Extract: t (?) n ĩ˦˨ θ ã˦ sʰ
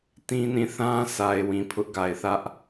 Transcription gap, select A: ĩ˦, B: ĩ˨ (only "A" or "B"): A